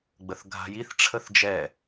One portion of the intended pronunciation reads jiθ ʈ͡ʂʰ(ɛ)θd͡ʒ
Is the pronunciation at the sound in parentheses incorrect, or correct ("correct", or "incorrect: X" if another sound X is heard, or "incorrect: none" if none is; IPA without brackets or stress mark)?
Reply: incorrect: ə